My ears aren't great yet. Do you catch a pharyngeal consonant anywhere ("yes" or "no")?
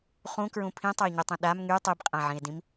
yes